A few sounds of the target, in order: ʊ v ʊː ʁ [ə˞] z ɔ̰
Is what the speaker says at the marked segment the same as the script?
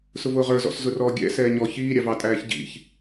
yes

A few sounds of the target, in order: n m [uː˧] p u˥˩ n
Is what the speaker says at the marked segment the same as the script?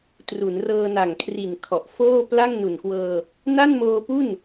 no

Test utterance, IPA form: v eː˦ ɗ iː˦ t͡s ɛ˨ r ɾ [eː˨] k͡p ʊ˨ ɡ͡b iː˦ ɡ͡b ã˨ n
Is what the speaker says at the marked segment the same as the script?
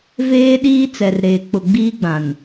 yes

